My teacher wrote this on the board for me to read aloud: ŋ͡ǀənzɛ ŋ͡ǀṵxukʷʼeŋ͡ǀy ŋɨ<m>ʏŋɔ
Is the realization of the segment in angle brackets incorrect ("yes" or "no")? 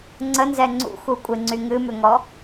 no